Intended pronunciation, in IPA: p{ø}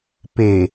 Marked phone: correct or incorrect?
incorrect